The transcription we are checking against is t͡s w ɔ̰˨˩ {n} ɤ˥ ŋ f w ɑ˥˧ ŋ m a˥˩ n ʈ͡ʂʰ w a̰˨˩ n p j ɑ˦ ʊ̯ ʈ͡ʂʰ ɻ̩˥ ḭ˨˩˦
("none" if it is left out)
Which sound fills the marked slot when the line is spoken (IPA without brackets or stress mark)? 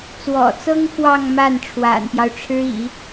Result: t͡s